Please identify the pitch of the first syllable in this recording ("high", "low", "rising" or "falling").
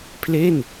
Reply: falling